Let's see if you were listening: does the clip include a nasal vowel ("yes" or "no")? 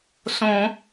yes